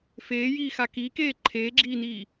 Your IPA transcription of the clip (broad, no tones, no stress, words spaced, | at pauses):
feːjiːxa kiːkeː ǃʰeːɡ͡ǁiːniː